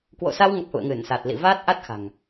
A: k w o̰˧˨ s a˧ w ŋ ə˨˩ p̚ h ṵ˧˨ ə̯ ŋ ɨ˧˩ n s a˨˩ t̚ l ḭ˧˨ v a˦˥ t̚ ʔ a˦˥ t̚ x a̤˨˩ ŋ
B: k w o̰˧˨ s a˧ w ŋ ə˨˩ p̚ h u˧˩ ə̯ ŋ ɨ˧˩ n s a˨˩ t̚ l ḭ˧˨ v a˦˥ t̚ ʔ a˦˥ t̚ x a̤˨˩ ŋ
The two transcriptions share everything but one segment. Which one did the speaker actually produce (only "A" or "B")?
A